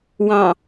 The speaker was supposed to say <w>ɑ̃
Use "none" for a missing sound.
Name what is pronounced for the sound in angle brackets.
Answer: w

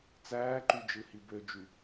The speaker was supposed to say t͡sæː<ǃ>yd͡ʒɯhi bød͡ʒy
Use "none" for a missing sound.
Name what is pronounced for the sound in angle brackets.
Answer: ǃ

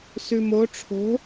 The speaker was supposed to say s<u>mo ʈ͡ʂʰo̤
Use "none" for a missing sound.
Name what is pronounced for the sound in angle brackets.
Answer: ʉ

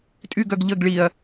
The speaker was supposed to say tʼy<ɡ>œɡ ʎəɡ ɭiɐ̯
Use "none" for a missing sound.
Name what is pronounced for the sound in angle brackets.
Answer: ɡ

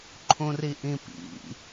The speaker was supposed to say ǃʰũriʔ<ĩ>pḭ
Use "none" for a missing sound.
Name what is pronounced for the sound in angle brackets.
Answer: ĩ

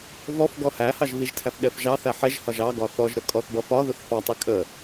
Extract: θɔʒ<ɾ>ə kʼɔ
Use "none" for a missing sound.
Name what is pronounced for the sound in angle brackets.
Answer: ɾ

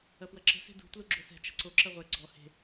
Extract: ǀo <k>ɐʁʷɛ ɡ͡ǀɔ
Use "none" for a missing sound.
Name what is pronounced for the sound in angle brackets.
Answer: ǁ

